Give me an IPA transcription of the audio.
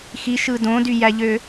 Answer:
x i ʃ ɯ d õ d y j æ ʎ ø

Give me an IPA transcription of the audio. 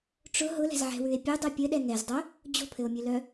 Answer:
ʈ͡ʂ ʊ ɦ ʊ l ɛ̤ z ʕ ɛ̤ w ʉ e̯ pʲ ʉ dˤ œ pʲ ɘ ɗ ɛ ŋ ɛ z dˤ œ | d͡ʑ o̤ pʰ ɘ o̯ mʲ ʉ l œ

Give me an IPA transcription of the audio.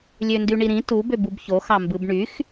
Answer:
lʲ ø n d y ɳ i ɾ ĩ t u b ø b u b ç o x ɑ m b ɯ b ɳ y x

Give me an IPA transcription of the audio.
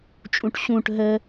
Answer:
t͡ʃʼ ũ ʈ ɕ ũ ʈ ɦ ə

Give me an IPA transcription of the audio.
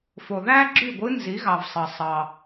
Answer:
f o˨˩ ð æ˥ ɡ͡ǁ y˥˩ ɡʷ ɯ˧˥ n z i˩˥ ɣ ɑ˨˩ v sˤ ɑ˨˩ sˤ ɑ˨˩

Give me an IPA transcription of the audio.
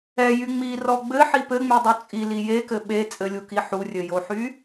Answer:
ɛ j y ŋ͡m i r ɔ ɡ͡b ɘ ħ i p ɘ ŋ͡m y dˤ u t͡sʼ i l i j e k ɘ ɓ e t͡sʼ ɘ lʲ u k i ħ u rʲ ɘ j o ħ y

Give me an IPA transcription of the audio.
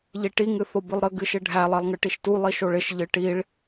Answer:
ʎ i ʈ i ŋ ɨ θ o b ɨ lˠ ɾ ə ɡ ɨ ʃ ɪ ɖʱ æ lˠ e lˠ ŋ ɨ ʈ i ʃ t u lˠ i ʃ o ɭ ɪ ʃ ʎ ɨ ʈ i ɭ

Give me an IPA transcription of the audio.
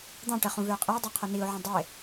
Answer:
d̪ ɑ̃ ʈ ɛ χ ũ v ø ə̯ qʼ i ʊ̯ dˤ e qʰ ɵ n i ʊ̯ ʕ ũ dˤ e

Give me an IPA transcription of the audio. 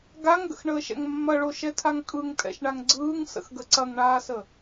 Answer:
ɡ a ŋ ɡ ə̰ x ɳ əː ʃ ɛ̰ ŋ mː ɐ ɭ o ʃ ɛ tʰ a ŋ kʼ ɯ ŋ tʼ ɛ̰ ʃ ɳ a ŋ ɡ͡ǀ ɯː ŋ s ə̰ x ɡ ə ǀ ɐ ŋ ɳ aː s ə

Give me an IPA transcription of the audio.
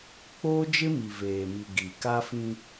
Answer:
k͡p oː˦ d͡ʒ ɪ˦ m i˨ v eː˨ m i˨ ɡ i˨ k a˦ f ĩ˦

